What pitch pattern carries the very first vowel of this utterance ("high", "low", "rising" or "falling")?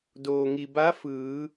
low